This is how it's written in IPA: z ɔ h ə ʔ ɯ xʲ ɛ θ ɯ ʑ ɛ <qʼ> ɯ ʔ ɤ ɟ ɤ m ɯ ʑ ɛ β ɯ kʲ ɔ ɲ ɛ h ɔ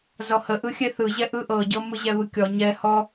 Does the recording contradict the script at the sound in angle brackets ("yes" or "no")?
yes